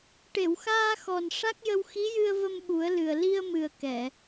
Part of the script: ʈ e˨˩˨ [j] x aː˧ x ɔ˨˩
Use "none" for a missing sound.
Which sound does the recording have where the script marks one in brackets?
w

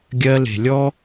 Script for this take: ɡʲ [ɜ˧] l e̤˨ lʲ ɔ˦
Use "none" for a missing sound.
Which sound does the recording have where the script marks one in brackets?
ɜ˧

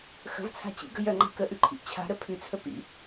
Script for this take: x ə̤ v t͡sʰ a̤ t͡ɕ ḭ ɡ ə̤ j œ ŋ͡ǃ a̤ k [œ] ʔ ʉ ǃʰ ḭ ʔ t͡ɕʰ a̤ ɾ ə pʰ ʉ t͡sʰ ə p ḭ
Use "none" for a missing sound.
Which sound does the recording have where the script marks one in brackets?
ə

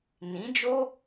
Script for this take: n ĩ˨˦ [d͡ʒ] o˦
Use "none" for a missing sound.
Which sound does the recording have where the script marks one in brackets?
d͡ʒ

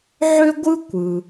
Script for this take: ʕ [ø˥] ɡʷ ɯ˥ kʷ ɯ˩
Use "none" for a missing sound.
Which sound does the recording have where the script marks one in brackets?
ø˥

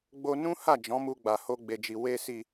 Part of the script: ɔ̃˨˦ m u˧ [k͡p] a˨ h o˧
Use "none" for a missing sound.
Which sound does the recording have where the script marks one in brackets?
ɡ͡b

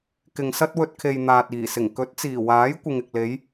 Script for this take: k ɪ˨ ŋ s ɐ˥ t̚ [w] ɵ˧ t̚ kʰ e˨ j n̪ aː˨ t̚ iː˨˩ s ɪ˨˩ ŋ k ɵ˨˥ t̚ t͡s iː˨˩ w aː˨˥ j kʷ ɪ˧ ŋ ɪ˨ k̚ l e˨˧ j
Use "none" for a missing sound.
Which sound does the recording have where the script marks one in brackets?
w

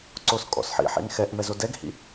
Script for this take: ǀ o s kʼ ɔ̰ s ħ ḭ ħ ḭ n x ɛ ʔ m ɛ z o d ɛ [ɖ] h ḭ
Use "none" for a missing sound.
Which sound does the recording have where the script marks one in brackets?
ɡ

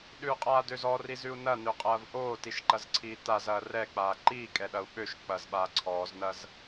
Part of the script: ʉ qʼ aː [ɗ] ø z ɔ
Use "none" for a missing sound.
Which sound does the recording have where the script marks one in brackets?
d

